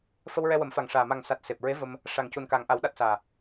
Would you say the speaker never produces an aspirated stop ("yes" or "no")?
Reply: yes